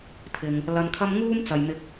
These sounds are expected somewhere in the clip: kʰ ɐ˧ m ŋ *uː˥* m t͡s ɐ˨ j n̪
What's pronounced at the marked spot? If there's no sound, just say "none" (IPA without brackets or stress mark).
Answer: uː˥